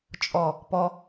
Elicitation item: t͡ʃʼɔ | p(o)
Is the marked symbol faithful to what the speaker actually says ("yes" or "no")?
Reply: no